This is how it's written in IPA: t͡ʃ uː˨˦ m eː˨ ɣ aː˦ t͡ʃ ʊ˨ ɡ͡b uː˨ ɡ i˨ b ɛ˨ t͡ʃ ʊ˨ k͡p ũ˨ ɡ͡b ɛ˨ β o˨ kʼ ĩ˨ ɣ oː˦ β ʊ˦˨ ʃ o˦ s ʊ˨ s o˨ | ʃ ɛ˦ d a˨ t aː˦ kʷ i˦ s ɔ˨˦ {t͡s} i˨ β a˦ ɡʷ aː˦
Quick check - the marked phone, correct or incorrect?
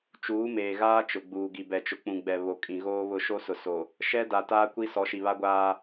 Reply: incorrect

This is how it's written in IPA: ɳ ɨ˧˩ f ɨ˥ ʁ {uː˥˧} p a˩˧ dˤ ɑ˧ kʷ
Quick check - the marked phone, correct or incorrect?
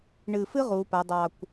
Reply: incorrect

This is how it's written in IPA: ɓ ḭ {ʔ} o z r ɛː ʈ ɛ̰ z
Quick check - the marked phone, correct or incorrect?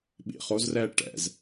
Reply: incorrect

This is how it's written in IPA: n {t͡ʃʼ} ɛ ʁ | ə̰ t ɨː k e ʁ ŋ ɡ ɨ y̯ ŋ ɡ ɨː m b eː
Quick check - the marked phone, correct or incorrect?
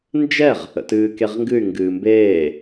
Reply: incorrect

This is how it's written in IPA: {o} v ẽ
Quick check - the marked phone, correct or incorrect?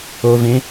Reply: correct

